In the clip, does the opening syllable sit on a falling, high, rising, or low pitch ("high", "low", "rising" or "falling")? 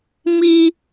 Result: high